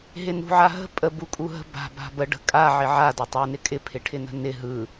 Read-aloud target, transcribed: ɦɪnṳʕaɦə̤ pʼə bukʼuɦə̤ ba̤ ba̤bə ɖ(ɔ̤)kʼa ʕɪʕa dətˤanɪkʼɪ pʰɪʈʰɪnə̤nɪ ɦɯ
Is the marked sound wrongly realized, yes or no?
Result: yes